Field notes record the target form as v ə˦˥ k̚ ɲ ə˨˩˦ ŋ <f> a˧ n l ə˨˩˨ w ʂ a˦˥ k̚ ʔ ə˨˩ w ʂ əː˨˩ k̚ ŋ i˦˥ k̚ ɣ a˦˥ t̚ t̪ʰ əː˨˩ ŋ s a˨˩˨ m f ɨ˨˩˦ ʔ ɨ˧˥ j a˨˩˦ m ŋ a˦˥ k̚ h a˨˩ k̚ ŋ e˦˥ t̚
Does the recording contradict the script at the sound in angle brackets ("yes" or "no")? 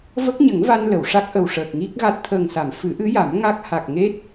yes